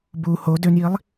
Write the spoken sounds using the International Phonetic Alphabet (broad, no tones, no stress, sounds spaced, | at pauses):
b u h o d ø n j i lˠ